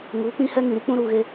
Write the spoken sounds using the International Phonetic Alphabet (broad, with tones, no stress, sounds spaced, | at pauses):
ŋ uː˨˦ k͡p ĩ˦ h ɛ˦ ŋ ĩ˨ ɾ i˦ k͡p ũ˦ ɾ uː˨ ɣ e˦